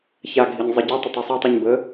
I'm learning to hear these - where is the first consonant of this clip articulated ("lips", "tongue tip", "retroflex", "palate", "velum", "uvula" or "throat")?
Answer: palate